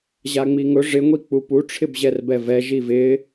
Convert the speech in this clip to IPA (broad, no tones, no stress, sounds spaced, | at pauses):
ʑ a ŋ͡m i ŋ ʊ ʐ ɪ ŋʷ i k͡p u p u ʈ͡ʂʰ ɪ b ʑ ɛ r b ɛ v ɛ ʒ i v ɪ